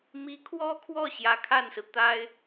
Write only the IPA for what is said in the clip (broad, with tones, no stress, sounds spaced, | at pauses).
m i˧˥ kʰ w ɔ˥ kʰ w ɔ˥˩ ɕ j ä˧˥ kʰ a˥˩ n s ɹ̩˩ t̪ a˥ ɪ̯